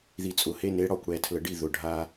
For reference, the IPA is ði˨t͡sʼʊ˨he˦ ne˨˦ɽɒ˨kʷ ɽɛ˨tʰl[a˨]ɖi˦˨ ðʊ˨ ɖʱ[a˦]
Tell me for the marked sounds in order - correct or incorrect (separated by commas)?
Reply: incorrect, correct